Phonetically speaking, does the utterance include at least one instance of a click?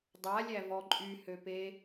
yes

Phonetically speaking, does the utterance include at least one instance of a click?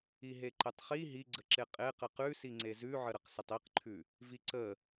yes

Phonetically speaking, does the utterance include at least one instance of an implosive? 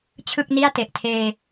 no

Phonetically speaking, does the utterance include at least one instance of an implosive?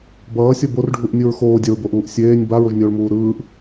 no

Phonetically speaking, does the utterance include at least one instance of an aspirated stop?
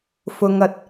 no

